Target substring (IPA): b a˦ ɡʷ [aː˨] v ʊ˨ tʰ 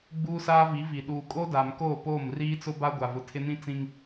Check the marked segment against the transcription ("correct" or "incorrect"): incorrect